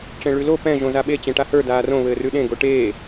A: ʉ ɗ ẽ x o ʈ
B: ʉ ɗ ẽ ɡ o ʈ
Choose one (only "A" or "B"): B